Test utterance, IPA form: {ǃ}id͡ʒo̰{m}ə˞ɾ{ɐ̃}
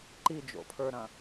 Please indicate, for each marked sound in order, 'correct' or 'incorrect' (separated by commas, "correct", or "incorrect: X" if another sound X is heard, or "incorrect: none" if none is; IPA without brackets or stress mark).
correct, incorrect: pʰ, correct